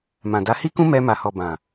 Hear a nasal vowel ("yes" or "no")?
yes